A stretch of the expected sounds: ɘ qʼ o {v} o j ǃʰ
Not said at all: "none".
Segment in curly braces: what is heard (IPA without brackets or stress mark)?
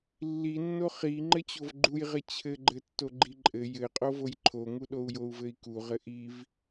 v